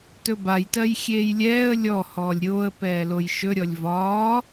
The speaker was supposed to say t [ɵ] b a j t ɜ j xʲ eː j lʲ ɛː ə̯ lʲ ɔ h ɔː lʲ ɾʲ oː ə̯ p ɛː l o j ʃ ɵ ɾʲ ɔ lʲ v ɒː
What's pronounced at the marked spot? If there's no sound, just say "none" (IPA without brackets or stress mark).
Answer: ɵ